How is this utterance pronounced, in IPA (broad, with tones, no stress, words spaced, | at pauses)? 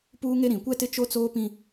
puː˦ŋe˦ ɾĩ˨kʷɛ˦tɪ˦ t͡ʃo˦t͡soː˦pĩ˦